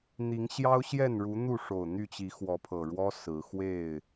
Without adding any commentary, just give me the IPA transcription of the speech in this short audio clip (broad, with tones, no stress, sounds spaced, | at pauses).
n̪ i˨˦ ŋ ɕ j ɑ˦ ʊ̯ ɕ j ɛ˥˨ n ɻ u˨˦ n̪ u˥˨ ʂ o˨˩ ʊ̯ n̪ y˥˨ t͡ɕ i˨˦ x w ɔ˨˦ pʰ ɤ˨˩ ɻ w ɔ˦ s ɹ̩˨˦ x w e˥˨ ɪ̯